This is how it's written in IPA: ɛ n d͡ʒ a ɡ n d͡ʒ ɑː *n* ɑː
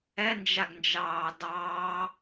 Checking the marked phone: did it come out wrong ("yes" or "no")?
yes